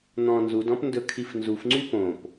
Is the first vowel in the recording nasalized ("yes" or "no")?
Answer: yes